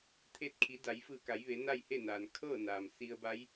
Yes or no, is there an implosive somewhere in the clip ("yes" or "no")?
no